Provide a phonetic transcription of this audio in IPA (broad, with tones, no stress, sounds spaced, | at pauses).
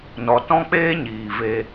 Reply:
n ɔ˧ t ɔ̃˦ k͡p eː˦ ɲ iː˨ v e˧